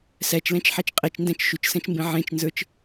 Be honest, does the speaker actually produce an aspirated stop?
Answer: no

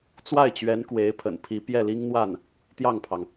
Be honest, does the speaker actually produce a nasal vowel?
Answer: no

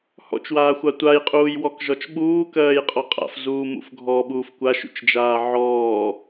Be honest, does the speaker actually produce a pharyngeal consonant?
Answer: yes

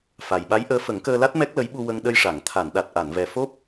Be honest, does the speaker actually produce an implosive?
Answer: yes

